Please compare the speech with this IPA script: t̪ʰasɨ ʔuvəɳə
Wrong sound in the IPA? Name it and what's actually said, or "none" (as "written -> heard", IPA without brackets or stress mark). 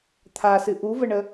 none